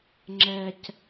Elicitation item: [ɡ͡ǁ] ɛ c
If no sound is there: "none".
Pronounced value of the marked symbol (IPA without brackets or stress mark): ŋ͡ǁ